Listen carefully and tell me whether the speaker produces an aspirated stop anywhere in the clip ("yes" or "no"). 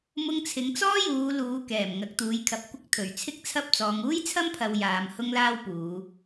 yes